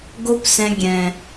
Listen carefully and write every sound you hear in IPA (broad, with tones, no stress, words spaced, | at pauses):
ɡo˦psɛ̃˧ ɡʲɛ̃˨